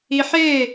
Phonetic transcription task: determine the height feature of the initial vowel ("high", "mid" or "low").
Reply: high